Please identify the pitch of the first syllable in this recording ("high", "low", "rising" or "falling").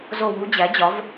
falling